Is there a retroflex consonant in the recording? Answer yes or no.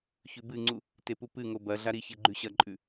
no